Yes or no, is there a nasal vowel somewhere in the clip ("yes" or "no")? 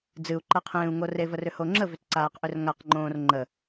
yes